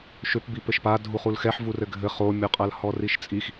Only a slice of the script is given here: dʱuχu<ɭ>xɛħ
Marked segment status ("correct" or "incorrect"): incorrect